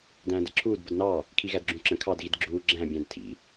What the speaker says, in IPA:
dæ̃ːdə̰ǁʰuːd bədnɑ | kʰiɣædɡ͡ǁũǁə̃ kʰɑd ɣidɡ͡ǁuː ɡ͡ǁæ̃ bʲæ̃dtʰḭ

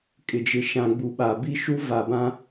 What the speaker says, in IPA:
kʼɪ˨d͡ʒɪ˨ ʃã˨ɡ͡bu˨ɓa˨bi˦ ʃu˦va˨bã˦

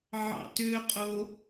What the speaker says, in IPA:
ʕɑ̰tøqʼo

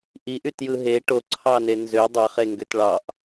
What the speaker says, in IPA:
ʔiʔytjɯ ɦe ʈoǀʰɑne nzø dˤɑχeŋɡøt ɭɑʔ

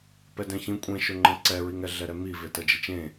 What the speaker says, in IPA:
pɛdɛ̃çĩ kʷʼẽʃʊŋ͡ǃɛ̃ ǀɛɹiŋɛ ɮɛɾɛmive təd͡ʒit͡ʃẽ

